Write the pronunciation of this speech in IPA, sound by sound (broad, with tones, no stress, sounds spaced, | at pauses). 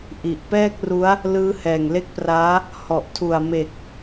ʔ i˨˩ ʔ p ɛː˥˩ k̚ r u˦˥ a̯ | l ɯː˦˥ h ɛː˨˩ ŋ l e˦˥ k̚ p r aː˦˥ | h ɔ˨˩ ʔ tʰ u˨˩ a̯ m e˨˩ k̚